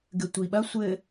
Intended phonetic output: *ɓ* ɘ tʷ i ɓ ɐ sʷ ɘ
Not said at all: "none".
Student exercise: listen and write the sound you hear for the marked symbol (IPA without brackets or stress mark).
ɡ